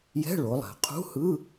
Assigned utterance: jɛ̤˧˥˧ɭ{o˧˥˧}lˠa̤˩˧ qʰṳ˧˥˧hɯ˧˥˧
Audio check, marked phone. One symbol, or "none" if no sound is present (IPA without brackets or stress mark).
o˩˧